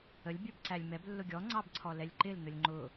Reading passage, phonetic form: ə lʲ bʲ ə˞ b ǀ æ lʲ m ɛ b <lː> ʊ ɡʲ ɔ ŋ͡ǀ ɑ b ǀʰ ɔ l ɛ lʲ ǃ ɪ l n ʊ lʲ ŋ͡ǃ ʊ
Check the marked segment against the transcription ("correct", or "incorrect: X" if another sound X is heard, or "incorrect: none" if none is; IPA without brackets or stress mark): correct